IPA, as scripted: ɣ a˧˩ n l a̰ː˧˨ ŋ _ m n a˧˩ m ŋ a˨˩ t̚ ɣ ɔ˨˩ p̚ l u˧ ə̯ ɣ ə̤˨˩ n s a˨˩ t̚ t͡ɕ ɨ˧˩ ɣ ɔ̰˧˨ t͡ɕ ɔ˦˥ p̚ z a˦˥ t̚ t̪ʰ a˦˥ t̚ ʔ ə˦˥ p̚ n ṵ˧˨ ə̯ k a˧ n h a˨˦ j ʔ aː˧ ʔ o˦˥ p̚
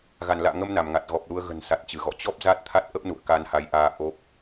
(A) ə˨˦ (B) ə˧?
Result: B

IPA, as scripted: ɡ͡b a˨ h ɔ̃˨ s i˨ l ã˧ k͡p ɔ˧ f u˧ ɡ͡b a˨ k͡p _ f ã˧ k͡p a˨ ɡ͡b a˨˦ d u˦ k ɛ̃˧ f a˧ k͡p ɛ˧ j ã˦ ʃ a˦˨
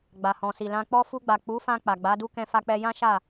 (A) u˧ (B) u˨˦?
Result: B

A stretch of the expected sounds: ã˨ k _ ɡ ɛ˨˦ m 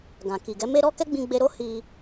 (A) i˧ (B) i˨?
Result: B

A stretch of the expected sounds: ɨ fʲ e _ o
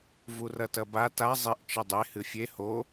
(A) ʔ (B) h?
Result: B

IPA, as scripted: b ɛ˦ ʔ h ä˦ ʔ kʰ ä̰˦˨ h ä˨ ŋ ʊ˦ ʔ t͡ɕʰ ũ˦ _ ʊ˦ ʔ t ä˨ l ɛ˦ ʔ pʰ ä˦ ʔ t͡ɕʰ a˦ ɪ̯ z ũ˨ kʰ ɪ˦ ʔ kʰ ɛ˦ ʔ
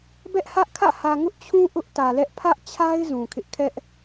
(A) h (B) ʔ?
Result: B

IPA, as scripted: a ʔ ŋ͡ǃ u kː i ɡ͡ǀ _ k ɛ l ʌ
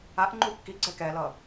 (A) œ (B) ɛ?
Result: B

